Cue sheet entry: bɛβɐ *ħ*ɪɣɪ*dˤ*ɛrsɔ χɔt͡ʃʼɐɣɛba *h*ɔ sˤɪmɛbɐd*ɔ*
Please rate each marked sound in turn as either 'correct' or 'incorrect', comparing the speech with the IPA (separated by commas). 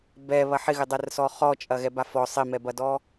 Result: correct, correct, incorrect, correct